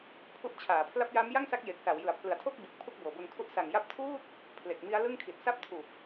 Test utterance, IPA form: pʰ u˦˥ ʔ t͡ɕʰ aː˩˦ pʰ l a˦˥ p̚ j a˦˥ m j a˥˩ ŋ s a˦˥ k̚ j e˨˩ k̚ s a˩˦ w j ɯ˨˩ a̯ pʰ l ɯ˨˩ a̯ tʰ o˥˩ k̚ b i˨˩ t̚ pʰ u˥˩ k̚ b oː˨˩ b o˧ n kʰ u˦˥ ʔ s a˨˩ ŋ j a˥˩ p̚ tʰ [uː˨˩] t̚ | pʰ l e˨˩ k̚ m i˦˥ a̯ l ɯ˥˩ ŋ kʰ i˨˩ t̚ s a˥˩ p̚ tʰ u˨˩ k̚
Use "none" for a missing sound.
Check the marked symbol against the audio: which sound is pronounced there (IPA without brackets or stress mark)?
uː˥˩